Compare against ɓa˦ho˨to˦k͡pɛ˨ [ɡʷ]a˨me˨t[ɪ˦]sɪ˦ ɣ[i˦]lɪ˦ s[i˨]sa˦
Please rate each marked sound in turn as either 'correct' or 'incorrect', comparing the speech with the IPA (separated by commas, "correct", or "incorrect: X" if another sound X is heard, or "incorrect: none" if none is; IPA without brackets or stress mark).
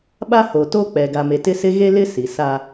incorrect: ɡ, correct, incorrect: e˦, correct